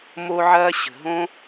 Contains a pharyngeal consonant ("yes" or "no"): yes